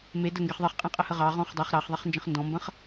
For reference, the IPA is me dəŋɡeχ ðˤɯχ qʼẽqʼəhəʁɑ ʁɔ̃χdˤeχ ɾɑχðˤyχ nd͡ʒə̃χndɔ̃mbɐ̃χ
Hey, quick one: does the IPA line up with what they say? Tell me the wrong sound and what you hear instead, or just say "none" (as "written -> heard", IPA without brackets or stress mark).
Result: y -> e